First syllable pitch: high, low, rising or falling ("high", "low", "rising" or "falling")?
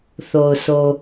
low